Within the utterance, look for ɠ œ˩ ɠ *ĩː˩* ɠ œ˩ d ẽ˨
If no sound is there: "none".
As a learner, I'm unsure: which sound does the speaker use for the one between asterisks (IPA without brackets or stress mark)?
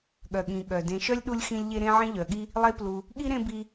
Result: ĩ˩